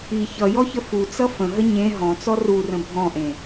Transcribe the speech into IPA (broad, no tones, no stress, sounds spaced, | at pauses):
i ç ʌ j ɔ ç ə f u t͡s ʌ f ə̃ ɦ ə ɲ ẽ ɦ ɔ̃ t͡s ɔ r u r ə̃ bʱ ɔ̃ ʔ ẽ